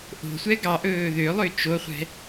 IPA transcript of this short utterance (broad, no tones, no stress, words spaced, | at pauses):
ʔo̤sʷɛ ɡɑʔɵː ðølˠø t͡ʃoχʷɛ̤